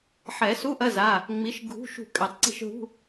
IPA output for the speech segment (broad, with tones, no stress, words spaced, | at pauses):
ħɛ˨˩˦su˧˥˧ʔɐ˧˥˧za˩˧˩ | ŋ͡mi˨˥ʃɡʱṳ˧˥˧ʃṳ˦˨ kʼɛ˨˩˦tˤǀi̤˦˨ʃɦṳ˧˥˧